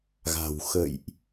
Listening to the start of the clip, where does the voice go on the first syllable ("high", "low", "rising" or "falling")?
low